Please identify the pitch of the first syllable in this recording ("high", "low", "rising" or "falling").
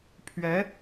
rising